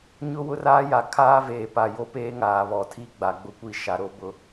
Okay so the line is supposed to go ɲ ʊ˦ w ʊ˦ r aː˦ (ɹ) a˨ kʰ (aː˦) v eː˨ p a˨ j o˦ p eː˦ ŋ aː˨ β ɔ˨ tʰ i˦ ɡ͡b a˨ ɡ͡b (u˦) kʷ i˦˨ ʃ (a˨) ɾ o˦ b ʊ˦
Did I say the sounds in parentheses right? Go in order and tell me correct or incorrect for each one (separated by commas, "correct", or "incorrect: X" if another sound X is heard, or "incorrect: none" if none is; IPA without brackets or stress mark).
incorrect: j, correct, incorrect: ʊ˦, correct